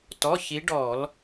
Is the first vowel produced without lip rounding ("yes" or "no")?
no